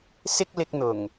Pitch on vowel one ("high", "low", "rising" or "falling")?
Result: high